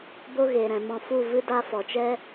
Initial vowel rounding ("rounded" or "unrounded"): rounded